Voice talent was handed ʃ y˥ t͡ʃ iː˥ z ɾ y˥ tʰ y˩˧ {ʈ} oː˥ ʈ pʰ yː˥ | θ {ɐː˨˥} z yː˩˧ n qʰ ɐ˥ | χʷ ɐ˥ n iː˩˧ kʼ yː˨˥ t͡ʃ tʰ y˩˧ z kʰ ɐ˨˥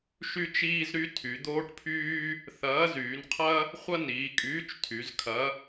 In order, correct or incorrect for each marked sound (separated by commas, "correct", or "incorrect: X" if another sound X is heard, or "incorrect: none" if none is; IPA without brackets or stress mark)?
incorrect: d̪, correct